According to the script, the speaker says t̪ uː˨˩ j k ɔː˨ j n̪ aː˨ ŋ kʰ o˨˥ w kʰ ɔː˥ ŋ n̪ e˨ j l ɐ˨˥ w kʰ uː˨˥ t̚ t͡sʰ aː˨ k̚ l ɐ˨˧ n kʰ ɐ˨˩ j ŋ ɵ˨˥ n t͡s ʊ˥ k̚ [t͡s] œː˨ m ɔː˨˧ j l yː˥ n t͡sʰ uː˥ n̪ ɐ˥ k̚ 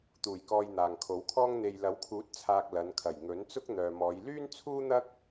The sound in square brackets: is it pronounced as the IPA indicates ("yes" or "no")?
no